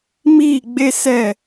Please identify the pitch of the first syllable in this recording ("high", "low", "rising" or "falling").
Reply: falling